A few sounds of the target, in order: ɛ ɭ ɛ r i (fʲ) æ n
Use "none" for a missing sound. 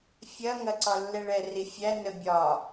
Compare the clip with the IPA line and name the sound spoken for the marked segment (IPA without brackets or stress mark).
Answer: fʲ